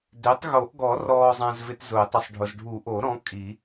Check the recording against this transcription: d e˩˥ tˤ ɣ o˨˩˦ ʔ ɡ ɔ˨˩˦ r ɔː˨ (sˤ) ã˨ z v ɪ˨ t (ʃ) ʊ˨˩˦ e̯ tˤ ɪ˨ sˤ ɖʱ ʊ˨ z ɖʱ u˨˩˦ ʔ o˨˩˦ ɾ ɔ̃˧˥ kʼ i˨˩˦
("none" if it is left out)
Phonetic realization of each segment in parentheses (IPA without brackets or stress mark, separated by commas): zˤ, z